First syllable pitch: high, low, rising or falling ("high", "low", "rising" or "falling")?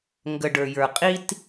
low